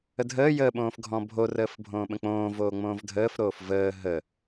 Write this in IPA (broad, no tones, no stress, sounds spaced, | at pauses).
ə dʱ əː j əː ɓ õː f ɡʱ ɔ̃ bʱ o r əː f bʱ õː ɓ ə̃ k͡p õː v oː ŋ͡m õː v dʱ əː f ɾ oː f v əː ɦ ə